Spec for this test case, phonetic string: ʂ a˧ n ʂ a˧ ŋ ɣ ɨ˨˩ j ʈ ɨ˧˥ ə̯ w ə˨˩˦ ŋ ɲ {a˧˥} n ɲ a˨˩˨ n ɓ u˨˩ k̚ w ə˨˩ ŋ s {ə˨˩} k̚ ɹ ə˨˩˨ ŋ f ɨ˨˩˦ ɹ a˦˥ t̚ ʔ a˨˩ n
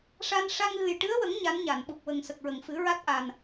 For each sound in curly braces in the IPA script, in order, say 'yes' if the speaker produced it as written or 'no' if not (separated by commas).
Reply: yes, yes